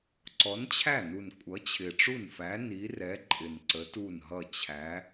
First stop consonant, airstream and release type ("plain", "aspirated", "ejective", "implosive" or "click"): click